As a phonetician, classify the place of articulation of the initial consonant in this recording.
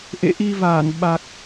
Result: glottal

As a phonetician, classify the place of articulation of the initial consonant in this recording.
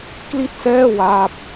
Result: velar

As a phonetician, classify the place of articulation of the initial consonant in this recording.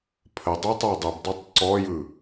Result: labial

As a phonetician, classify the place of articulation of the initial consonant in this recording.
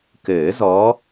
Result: velar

